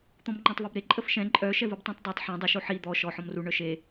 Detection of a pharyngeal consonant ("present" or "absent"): present